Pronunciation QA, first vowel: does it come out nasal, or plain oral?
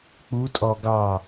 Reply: oral